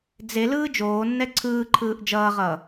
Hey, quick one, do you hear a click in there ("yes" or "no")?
yes